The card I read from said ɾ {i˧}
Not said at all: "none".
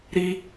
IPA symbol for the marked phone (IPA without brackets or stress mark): i˧